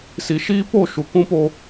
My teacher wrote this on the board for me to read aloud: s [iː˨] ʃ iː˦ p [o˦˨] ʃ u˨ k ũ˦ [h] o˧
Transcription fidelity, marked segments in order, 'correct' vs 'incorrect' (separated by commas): incorrect, correct, incorrect